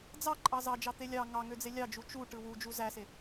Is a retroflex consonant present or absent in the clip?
present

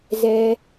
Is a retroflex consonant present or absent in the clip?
absent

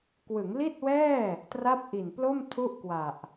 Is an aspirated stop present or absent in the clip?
present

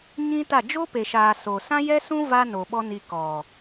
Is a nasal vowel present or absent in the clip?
present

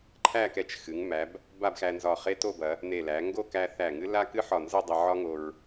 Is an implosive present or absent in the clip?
absent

